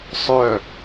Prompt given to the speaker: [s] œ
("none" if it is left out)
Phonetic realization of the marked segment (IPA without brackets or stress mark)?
sˤ